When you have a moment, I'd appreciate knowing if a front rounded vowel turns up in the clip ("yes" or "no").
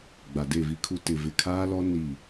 no